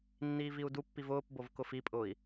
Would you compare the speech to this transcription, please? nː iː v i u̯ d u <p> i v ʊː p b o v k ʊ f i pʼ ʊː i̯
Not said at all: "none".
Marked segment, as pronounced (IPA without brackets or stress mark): pː